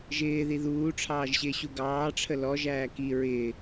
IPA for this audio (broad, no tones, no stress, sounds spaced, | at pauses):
ʒ ɪː ð i ð uː ʈ͡ʂʰ ɑː ʒ ɕ ɪː ɕ u ɡ ɑː ʈ͡ʂʰ ə l ɔ ʒ æː k i ɹ ɪː